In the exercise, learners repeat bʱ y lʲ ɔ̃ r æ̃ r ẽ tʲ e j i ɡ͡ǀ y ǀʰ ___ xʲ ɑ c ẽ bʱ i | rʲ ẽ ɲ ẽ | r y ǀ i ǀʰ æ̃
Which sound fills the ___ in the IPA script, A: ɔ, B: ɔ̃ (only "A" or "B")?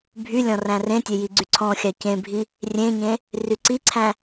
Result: B